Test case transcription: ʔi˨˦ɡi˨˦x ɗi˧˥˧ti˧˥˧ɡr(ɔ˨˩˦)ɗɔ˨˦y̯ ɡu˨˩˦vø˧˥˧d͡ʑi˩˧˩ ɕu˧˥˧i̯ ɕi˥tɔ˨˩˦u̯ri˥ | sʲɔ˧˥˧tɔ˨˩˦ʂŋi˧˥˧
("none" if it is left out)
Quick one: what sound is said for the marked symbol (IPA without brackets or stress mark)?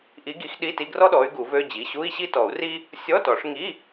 ɔ˥